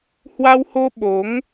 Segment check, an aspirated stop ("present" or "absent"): absent